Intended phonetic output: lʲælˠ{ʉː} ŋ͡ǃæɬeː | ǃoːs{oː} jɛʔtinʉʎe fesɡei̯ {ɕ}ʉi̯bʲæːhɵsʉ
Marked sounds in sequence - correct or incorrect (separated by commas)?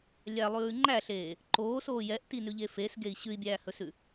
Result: correct, correct, correct